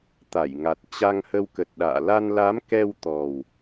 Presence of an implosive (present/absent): present